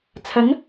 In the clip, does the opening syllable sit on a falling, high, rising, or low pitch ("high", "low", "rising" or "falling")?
rising